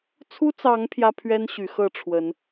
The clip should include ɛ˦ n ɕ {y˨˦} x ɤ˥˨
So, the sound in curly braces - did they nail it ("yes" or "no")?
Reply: yes